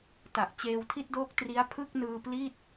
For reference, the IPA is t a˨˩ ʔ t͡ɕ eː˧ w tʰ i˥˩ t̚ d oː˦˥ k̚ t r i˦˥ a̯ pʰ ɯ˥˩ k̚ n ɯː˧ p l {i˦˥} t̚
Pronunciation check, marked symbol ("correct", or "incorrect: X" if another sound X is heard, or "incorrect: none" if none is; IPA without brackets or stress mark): incorrect: i˥˩